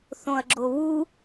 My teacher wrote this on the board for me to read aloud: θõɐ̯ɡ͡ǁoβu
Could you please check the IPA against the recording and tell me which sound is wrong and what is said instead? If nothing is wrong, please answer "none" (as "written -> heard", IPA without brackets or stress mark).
none